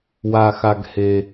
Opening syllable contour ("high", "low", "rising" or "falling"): low